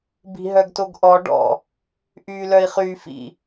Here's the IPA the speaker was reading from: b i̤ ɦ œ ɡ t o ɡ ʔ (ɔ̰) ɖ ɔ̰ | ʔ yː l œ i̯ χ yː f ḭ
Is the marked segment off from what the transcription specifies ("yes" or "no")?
yes